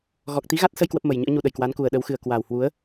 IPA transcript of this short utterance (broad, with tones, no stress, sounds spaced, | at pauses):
ɣ ɔ˨˩ k̚ t̪ i˨˦ ɣ a˦˥ t̚ s ə˧ j k w ə˦˥ p̚ m ə˨˩ j ɲ ɨ̰˧˥ ə̯ ɲ u˧ ɗ ə˧˩ j k w a˨˦ n k u˨˩ ə̯ ɗ ə˨˦ w x ɨ˨˩ ə̯ k w a˨˩ w h w u˨˦ ə̯